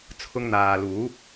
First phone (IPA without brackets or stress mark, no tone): t͡sʰ